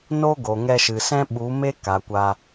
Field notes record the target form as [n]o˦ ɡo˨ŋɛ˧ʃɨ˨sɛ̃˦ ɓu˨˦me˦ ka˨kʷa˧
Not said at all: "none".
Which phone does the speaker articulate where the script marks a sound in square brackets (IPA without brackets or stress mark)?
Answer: n